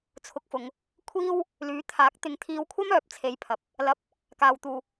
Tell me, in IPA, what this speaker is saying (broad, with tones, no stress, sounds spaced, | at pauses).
t͡sʰ ʊ˧ k̚ f ʊ˨˧ ŋ | kʷʰ iː˥ w | l yː˨˥ t̪ʰ aː˨˥ k̚ t̪ ɪ˨˥ ŋ t̪ʰ iː˧ w kʷʰ ɐ˥ m œː˨˥ p̚ t͡sʰ e˧ j pʰ ɐ˨ p̚ | l ɐ˧ p̚ | k aː˨ w t̪ uː˨